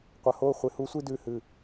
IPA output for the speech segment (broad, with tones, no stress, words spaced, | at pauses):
qʷɐ˨ho˦˨ χʷe˨hu˦sʷi˦ dʉ˨hɨ˨